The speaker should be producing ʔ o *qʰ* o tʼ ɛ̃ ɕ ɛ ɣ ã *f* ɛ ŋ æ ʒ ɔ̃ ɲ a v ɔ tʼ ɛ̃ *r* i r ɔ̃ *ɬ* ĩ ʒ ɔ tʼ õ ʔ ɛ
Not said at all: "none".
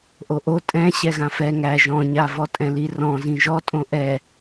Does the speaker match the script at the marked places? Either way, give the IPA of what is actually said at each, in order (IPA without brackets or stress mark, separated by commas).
ʔ, f, l, z